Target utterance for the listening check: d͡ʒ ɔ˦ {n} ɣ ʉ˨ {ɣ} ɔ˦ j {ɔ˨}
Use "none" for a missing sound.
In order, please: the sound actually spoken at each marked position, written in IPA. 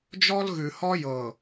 l, h, ɤ˨

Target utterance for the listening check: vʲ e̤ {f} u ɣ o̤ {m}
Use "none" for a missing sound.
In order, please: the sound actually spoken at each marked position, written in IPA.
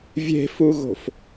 f, f

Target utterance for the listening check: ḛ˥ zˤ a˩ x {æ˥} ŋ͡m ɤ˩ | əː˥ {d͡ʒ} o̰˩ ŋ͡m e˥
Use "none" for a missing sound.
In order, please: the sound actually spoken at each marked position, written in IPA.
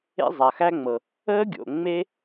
æ˥, ɡʲ

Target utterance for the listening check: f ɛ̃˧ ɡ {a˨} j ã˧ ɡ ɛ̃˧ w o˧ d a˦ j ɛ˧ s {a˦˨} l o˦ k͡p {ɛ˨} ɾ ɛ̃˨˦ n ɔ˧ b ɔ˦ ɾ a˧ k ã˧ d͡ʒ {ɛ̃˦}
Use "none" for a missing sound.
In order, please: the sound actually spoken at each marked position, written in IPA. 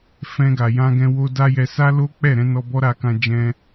a˨, a˦, ɛ˦˨, ɛ̃˧

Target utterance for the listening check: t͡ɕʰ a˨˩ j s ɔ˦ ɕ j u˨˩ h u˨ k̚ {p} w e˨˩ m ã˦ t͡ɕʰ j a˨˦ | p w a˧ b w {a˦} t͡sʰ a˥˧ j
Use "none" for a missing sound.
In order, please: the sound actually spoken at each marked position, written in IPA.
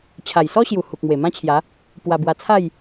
m, a˧

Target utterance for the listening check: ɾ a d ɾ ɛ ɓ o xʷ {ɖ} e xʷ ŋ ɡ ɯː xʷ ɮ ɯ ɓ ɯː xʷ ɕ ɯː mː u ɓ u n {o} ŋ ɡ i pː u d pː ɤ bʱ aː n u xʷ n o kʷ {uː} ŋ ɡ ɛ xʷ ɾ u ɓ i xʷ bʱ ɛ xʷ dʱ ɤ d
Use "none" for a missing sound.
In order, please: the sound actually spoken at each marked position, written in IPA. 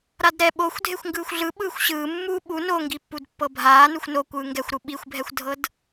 dʱ, o, ɯː

